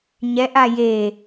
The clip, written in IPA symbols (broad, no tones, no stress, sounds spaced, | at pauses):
ɲ ɛ ʔ a j e